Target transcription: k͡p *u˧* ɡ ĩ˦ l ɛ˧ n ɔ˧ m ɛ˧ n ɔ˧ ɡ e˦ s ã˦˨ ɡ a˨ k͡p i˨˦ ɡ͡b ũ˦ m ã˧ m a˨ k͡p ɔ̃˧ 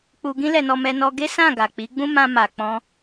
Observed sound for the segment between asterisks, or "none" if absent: u˧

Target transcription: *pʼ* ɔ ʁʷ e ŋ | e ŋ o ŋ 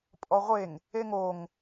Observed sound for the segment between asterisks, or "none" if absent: pʼ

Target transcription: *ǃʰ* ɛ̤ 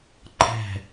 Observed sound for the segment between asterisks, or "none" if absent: ǃʰ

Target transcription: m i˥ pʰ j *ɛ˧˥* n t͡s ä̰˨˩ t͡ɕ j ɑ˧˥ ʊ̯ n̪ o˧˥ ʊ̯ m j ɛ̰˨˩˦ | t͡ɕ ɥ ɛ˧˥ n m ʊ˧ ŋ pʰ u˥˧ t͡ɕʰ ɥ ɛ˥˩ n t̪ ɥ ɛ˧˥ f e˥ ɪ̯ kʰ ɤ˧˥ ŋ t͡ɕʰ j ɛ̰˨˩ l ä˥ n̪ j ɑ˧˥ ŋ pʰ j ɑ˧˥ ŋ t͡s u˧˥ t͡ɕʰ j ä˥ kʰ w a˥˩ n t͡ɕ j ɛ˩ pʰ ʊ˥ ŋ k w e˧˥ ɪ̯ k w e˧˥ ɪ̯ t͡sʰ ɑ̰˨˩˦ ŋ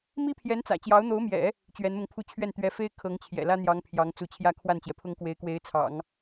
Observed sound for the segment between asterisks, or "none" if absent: ɛ˧˥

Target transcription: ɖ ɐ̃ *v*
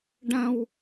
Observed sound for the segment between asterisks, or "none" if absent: w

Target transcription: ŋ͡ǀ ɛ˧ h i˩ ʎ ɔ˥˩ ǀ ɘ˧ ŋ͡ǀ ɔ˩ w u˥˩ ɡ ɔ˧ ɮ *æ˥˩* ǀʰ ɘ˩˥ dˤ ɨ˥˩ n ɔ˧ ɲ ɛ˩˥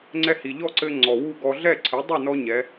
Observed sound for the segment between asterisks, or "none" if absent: ɛ˥˩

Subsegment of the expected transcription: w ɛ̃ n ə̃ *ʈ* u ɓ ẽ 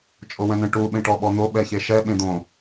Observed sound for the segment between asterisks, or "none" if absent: ʈ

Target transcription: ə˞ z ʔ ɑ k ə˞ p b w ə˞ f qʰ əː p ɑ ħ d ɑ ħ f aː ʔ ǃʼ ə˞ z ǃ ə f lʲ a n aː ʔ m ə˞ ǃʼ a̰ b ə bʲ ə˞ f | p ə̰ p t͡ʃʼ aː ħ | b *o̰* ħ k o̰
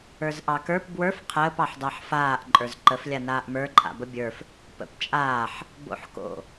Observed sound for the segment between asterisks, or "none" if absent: o̰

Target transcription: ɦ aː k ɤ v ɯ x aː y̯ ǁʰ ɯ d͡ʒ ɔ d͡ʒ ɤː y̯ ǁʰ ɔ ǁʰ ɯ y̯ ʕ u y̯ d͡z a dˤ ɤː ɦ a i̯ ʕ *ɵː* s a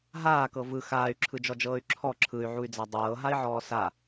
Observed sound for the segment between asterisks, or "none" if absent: ɔː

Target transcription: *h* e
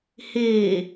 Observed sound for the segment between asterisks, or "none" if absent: h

